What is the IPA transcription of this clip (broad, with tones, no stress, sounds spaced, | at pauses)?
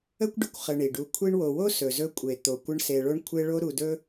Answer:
ə˥ kʷ ɖ ə˨ kʷ χ ə˨ ɳ i˩ ɖ u˨ kʷʰ i˦ ɳ w o˨ w o˥ s ɵ˩ z ɵ˦ kʷʼ e˩ t̪ o˩ kʷ ə˦ ɳ s e˨ ɭ o˥ ɳ kʷʰ e˦ ɭ o˦ ɾ u˨ d ɵ˦